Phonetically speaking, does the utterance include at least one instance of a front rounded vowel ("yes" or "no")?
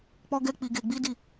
no